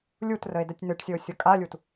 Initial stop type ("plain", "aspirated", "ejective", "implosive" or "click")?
plain